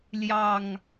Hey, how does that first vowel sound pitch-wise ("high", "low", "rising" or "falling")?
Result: low